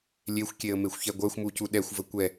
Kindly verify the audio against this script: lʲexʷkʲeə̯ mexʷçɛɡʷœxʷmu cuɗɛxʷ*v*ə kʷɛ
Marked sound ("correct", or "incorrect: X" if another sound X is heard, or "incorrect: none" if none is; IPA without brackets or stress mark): correct